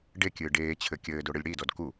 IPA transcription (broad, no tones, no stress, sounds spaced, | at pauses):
ɖ e kʲ ɨː ɖ eː t͡ɕʰ ɘ kʲ ɘː d o ɽ ɨ lʲ ɽ i d ɔ d k u